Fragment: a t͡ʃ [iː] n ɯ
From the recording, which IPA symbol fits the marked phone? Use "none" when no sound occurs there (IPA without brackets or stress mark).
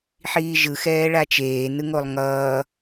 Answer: eː